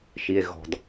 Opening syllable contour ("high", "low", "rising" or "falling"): low